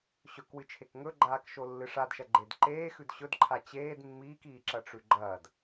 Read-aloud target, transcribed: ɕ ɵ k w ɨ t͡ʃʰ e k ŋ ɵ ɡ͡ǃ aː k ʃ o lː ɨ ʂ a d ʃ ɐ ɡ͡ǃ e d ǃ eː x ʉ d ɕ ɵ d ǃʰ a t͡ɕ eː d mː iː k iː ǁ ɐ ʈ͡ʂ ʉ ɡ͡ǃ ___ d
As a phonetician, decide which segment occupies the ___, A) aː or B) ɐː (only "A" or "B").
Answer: B